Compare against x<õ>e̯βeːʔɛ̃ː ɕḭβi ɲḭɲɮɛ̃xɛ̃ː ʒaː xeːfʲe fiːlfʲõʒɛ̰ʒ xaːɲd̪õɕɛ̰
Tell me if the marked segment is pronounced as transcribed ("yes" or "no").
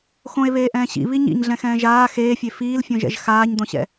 yes